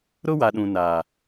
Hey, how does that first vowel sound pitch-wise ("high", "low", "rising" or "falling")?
high